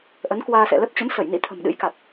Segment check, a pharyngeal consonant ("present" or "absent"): absent